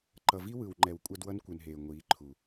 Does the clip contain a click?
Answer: yes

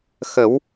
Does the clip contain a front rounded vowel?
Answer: no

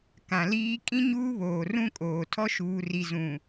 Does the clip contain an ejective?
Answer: yes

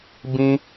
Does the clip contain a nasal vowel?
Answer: yes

